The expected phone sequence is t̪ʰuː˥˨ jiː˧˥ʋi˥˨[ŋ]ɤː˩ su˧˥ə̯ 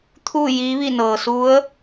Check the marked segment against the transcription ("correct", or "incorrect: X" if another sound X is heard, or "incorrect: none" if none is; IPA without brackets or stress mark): incorrect: n